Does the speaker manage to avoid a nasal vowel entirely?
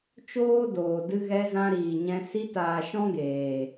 no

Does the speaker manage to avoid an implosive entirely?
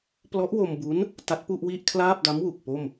yes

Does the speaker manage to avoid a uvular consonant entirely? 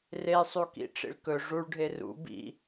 yes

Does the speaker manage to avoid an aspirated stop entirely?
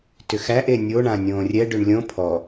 no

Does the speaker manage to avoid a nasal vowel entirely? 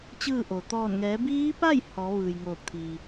yes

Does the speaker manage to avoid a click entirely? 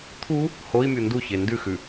yes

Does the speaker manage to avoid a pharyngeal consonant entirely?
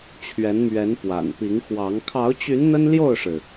yes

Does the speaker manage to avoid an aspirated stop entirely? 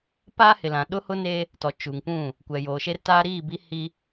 yes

